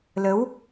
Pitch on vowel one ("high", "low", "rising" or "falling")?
rising